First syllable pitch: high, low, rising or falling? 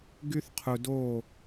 high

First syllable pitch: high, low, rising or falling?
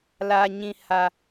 low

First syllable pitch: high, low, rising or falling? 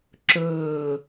falling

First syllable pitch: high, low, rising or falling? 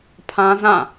high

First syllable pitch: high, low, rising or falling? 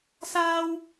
high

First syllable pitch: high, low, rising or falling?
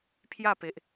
falling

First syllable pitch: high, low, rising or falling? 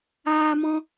high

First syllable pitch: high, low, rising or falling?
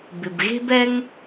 low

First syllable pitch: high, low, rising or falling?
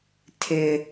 high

